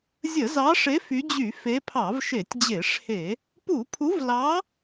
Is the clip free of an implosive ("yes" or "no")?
yes